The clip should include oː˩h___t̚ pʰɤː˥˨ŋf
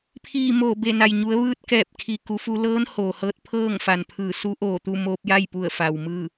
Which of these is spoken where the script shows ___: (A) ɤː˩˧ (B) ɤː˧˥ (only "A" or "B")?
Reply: B